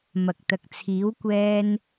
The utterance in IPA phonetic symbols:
m ɐ˨ k̚ t̪ ɐ˨ k̚ t͡sʰ iː˨˥ w kʷ ɛː˧ n

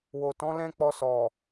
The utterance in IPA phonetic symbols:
w o˨ t ɔ̃˨˦ l ɛ̃˦ k͡p ɔ˧ s ɔ˨

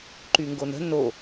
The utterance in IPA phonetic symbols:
ǃ y ŋ ɡ o n ə̤ n o

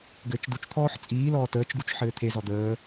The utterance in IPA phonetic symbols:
ɡ ɘː t͡ʃ d u t͡ʃ t̪ʰ ɔː ħ t͡sʼ iː l ɔː t əː t͡ʃ ɡ u t͡ʃ ħ ɘː t̪ʰ e z ɔ d̪ əː

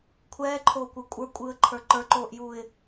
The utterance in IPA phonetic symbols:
kʷʰ ɛː ǃʰ oː kʷ ə˞ kʷʼ ə˞ kʷʼ ɯː ə̯ ǃʰ ə˞ ǃ ə˞ ǃ oː ʔ j uː ɪ̯

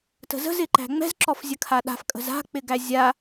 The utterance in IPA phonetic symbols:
t ə̤ z ə̤ z ɪ ǃ æ̤ ŋ͡m ɛ̤ z ǁ ɔ f zʲ ə kʰ a ɗ a̤ f kʼ ə̤ z a̤ k͡p ɪ ɡ æ zʲ a

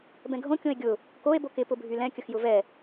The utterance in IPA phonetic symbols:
b ɛ̃ ɡʱ õ kʲ õ e̯ ɡʲ ʊ | k o e̯ b o k ɪ p ʊ bʱ y l ɛ̃ kʲ ə x j ʊ v ɛ

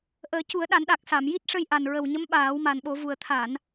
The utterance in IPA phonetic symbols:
ʔ əː˨˩˦ c u˨˩˦ ə̯ ɗ a˨˩˦ n ɗ a˨˩ k̚ s a˨˩˨ m j i˦˥ t̚ ʂ ə˧ j ʔ a˨˩ n ɹ ə˨˩ w ɲ ə˧˥ m ɓ aː˨˩˦ w m a˨˩ n ɓ o˨˩˦ v u˨˩ ə̯ t̪ʰ a˨˩˨ n

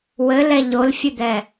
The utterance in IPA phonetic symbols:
w ɘ l ɛ ʎ o l fʲ ɨ d̪ ɛ

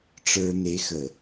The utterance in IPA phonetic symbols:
ʈ͡ʂ ə˞˨ n e˨ x ə˨

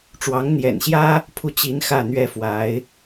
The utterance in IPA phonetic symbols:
ʈ͡ʂ w ɑ˧˥ ŋ n̪ j ɛ̰˨˩ n ɕ j ä˥ | pʰ u˥˩ t͡ɕ i˧˥ n x ä˥˩ n̪ ɥ ɛ˥ f w a˧˥ ɪ̯

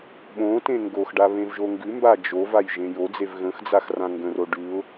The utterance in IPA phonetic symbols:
ɓ õ t ẽ ŋ ɡ o x ɖ a β ẽ v ʒ o ŋ ɡ ʉ m b a d͡ʒ o v a j ʒ ẽ j o d͡z e v ɣ ə̃ x d͡z a x r ã ŋ ɡ ə̃ r o ɖ ʉ ʊ̯

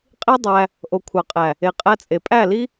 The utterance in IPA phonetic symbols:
qʼ i˦ dˤ æ˧ | ʔ o˨ kʷʰ ɑ˨ qʼ æ˨ | e˨ qʼ æ˧ t͡sʼ e˨ pʼ æ˦˨ l i˦

